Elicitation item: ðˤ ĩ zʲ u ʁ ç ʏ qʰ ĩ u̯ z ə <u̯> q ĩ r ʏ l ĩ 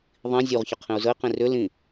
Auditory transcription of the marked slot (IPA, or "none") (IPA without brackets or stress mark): i̯